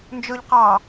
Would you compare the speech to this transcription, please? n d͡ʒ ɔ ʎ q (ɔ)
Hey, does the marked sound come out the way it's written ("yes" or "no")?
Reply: no